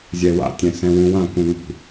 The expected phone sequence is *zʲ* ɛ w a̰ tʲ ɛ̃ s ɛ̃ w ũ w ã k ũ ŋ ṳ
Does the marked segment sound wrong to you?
no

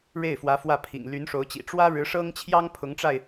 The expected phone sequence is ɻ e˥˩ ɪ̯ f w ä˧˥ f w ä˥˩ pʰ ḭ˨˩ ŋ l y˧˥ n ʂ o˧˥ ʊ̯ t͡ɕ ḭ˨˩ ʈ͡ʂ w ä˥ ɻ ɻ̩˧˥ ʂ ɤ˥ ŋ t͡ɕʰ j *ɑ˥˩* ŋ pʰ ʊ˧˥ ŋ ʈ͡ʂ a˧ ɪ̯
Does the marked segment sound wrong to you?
yes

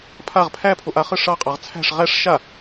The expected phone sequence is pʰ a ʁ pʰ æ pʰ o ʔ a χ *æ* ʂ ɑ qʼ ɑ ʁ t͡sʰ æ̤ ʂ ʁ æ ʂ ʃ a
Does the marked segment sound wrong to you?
yes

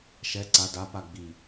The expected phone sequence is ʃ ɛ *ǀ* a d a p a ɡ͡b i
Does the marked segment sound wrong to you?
no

